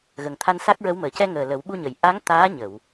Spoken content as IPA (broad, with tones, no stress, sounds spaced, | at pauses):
ɣ ə˨˩ ŋ t̪ʰ a˧ n s a˦˥ k̚ ɹ ə˧˥ w m əː˨˩˨ c ɛ˧ ŋ əː˨˩ l ə˨˩˦ w ɓ u˧ ɲ ə˨˩˨ j ʔ a˧˥ ŋ t̪ aː˧˥ ɲ ə˨˩˨ w